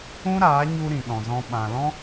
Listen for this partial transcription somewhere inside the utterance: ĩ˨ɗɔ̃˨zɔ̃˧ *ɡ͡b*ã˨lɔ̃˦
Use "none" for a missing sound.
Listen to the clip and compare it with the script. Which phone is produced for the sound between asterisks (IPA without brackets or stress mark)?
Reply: ɓ